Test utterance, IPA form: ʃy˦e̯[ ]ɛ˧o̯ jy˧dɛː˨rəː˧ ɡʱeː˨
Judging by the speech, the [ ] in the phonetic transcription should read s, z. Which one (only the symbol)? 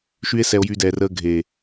s